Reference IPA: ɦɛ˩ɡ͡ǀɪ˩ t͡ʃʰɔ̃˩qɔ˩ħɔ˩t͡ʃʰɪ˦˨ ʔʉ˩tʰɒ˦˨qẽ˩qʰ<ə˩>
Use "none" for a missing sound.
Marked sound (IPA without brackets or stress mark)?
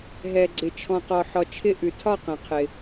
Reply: ɪ˩